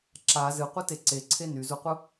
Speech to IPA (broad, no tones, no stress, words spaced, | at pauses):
ǁa zɨqʷɨte ǀeǀʰe nyzuqʷɯ